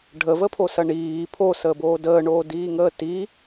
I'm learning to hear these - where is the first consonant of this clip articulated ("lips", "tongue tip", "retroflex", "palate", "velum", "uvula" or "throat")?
retroflex